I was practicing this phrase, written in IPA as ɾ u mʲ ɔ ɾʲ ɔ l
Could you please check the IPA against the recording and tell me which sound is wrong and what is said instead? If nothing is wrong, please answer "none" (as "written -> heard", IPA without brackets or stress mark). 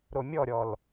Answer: u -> o